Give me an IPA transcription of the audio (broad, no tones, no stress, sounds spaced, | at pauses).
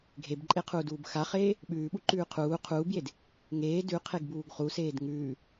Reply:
ɡʱ e b ǃʼ e qʰ uː d uː b x a χ eː | ɓ ʉː ɓ u ǃ ʉː qʰ uː qʰ uː b j e d | ŋ eː d ʉ qʰ e ɡ b uː ɡ χ u s eː d ŋ ʉː